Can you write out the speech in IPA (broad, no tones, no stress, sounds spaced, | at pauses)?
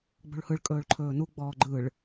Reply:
ɡ͡b o̤ ɭ h ɯ ɭ kʼ ɵː ɭ ǃʰ ɵː n u ɡ͡b ɔː ɡ͡ǃ ɯ ɭ